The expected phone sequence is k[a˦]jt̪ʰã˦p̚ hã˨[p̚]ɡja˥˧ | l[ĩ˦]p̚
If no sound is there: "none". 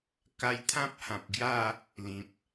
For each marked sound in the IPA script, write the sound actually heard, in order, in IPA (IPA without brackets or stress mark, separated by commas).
a˧, p̚, ĩ˨